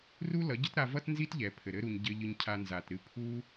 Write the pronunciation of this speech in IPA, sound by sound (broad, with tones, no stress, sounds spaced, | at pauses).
r u˦ l ʌ˨˦ ɟ ə˦ t ɾ a˧ v ʌ˦ t n z i˦ t ʎ ɛ˨ pʰ ɘ˨ ɾ ɘ˦ ɾ u˧ ɲ ɟ ɘ˧ ʎ ɨ˧ ɲ cʰ a˧ n z a˨ t ɾ ɨ˧ pʰ u˦